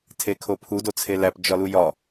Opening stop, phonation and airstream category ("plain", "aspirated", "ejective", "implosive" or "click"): aspirated